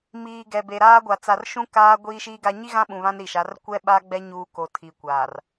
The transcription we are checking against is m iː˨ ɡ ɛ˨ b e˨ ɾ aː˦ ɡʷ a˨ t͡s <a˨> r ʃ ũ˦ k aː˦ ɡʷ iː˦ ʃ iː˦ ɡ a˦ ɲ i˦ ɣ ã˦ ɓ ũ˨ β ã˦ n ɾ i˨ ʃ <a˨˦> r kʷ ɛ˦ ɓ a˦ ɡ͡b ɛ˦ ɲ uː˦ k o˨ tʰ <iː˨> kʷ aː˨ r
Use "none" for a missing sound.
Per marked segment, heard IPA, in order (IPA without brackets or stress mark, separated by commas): a˨, a˨˦, i˨